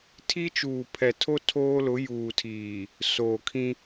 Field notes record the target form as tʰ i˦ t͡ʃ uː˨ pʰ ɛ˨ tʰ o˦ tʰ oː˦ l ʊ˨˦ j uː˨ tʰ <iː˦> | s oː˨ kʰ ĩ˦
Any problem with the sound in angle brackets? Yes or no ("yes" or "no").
yes